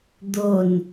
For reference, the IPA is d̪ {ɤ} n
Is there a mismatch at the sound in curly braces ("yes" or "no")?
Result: yes